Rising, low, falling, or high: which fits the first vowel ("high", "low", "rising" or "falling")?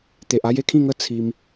low